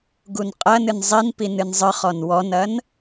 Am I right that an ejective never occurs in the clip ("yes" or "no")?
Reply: no